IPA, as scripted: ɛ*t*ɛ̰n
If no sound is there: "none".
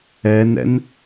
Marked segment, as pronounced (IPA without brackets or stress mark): n